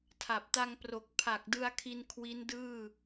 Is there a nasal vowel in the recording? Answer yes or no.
no